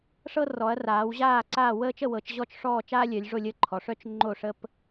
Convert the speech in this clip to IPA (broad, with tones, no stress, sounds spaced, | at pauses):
ʂ ɤ˦ r ɔ˩˧ ɐ̯ r aː˩˧ w ʑ aː˦˨ ǀ aː˦˨ w əː˦ t͡ʃ ə˦˨ w ɤ˩˧ t͡ʃ ʑ ɔ˦˨ t͡ʃ ʂ ɔː˦˨ t͡ʃ aː˦ lʲ œ˩˧ lʲ ʐ o˦˨ lʲ əː˦˨ ǃʰ ɔ˩˧ ʂ œ˦ t͡ʃ ŋ͡ǃ o˦˨ ʂ ə˦ p